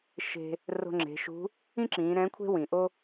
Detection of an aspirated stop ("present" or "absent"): present